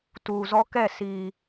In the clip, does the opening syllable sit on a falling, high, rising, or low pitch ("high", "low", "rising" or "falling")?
low